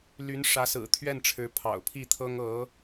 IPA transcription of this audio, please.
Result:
ly˧˥n ʂä˧˥sɹ̩˨˩ t̪ʰɥɛ˥˩nʈ͡ʂʰɻ̩˧˥pʰɑ̰˨˩ʊ̯ pʰi˥˩t̪ʰɤ˥ŋ ɤ˧˥

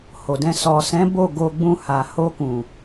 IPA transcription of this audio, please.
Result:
ho˨dɛ̃˧ sɔ˨sɛ̃˨˦ bo˦˨ɡo˧ ɡ͡bũ˧ha˨ ho˧kũ˨

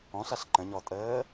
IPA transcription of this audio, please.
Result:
ɔ̃ɬaɬ ǃə̃ɲɔtʼəː

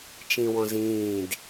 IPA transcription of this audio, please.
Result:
t͡ʃĩwɔ̃zĩːd

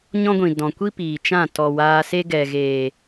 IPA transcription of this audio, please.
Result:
ɲɔ̃˦ɡʷĩ˨ dɔ̃˨kʷi˦ piː˨t͡ʃã˦˨ tɔ˨waː˧se˦ ɡɛ˨ɣeː˨

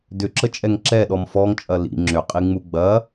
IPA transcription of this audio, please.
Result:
dʏǁət͡ʃʼɛŋ ǁɛɗɔm fɔŋt͡ʃʼɐ lḭ ŋ͡ǁʏqʼiŋ͡mu ɡ͡bɐ

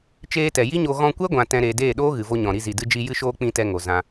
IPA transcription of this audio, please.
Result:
t͡ʃeː˧tɛ˨ ji˦ɲo˧ ɣɔ̃˧kʷɛ˦ɡʷã˨ tɛ̃˧ɾeː˧ deː˦˨ɗoː˦ ɣɨ˨vo˧ɲɔ̃˨ ɾi˧zi˨dɨ˧d͡ʒi˧ jɨ˧ʃoː˧ k͡pĩ˧tɛ˧ ŋo˨zã˧

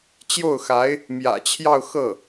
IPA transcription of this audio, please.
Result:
t͡ɕjo˥˩ʊ̯xa˧˥ɪ̯ | mjä̰˨˩t͡ɕʰjɑ˥˧ʊ̯ xɤ˥˩

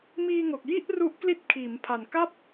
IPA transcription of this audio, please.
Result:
miː˧ŋo˨˩k̚ji˥˩ʔru˦˥ʔ kli˦˥t̚kʰiː˩˦mpʰa˨˩nka˥˩p̚

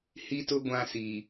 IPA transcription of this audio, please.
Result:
hi˦tʊ˦ ɡʷã˨ si˨

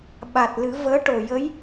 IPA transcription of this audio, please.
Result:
ɓa˨˩t̚ lɨ˨˩˦vəː˧˥ʈo˨˩ jə˧˥j

